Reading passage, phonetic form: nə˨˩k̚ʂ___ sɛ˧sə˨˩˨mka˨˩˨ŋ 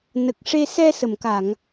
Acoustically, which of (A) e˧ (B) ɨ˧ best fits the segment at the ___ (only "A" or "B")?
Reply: A